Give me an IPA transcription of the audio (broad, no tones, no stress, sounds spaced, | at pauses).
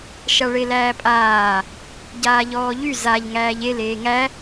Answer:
ʃ a ɭ e l æː pʼ aː | ɟ aː ʎ ɔː ʎ y z a ʎ ŋ æː ʎ e l eː ŋ æ